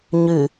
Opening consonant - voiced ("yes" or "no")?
yes